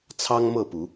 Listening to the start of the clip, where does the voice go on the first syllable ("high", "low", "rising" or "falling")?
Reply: high